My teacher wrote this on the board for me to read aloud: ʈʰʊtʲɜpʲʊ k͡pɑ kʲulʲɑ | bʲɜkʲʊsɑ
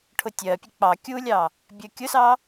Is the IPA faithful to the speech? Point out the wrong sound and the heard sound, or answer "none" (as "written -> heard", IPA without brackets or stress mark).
none